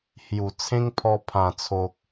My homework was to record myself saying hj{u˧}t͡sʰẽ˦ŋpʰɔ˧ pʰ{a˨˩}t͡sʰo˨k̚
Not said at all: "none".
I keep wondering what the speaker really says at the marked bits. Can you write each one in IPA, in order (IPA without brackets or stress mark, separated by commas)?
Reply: u˨˩, ã˨˩